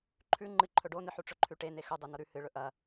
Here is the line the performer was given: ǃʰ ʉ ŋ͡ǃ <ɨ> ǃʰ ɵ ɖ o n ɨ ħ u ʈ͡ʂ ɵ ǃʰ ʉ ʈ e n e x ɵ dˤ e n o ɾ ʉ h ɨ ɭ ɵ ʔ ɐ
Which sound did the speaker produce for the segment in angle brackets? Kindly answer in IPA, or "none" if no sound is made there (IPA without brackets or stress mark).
ɨ